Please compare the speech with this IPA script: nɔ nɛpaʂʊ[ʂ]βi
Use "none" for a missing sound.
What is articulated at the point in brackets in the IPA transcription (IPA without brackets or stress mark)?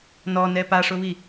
none